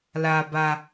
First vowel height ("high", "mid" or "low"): low